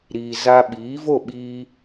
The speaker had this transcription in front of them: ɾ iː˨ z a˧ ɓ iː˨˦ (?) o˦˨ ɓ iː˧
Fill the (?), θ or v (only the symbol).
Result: v